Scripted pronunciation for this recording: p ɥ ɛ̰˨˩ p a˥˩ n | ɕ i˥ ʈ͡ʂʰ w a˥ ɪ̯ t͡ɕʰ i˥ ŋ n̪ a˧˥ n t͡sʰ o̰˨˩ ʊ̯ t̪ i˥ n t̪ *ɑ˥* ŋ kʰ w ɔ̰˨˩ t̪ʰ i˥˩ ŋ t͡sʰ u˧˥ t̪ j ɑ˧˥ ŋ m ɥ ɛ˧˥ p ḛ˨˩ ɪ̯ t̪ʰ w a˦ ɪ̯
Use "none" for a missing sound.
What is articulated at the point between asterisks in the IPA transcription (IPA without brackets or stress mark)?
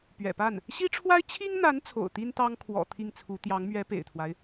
ɑ˥